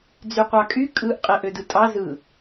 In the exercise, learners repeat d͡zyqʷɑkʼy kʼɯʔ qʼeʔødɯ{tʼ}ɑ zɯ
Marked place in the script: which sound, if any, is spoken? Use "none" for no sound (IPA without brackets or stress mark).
tʼ